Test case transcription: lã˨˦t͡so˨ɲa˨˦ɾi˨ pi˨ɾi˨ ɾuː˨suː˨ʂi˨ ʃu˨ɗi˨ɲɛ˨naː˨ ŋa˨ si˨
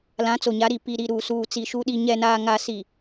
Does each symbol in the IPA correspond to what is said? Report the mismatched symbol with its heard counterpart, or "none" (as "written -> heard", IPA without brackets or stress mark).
ʂ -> t͡s